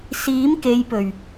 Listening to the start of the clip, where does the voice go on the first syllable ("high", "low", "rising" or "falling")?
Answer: rising